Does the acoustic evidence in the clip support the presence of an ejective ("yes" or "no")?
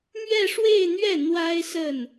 no